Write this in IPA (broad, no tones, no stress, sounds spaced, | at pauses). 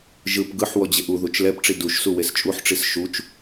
ʒ ɯ p ɡ ɯ ħ w ɔ d͡ʑ e ʔ u ð u t͡ʃ l ɛ p ʈ͡ʂ i d u ʃ s u w e s t͡ʃʼ u ħ ʈ͡ʂ i s ʃ u t͡ʃ